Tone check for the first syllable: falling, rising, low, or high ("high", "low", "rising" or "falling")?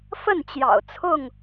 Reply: falling